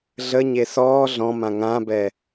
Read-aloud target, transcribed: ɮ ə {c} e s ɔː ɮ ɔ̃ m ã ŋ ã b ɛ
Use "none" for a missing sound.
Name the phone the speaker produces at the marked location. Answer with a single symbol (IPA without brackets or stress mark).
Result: ɲ